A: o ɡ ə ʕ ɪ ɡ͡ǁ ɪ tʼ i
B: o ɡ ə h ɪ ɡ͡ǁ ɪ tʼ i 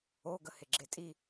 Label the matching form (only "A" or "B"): B